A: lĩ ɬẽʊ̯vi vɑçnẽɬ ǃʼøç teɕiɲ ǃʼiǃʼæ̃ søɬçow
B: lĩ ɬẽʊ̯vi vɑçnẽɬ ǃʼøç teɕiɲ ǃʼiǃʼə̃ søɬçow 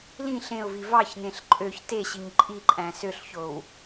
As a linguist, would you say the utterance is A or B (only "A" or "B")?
A